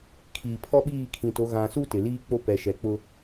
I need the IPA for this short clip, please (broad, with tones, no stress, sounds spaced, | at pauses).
kʰ iː˨ pʰ ɔ˦ ɓ iː˦˨ kʰ ĩ˨ t o˨˦ ɣ ã˨ s u˦ t ɪ˨ l iː˦ k͡p o˦ p ɛ˨ ʃ ɛ˨ k͡p ʊ˦